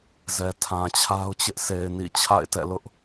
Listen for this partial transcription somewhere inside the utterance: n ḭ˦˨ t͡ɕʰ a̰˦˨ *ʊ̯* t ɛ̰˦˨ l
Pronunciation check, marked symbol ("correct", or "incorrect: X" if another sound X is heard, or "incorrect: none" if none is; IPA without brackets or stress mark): incorrect: ɪ̯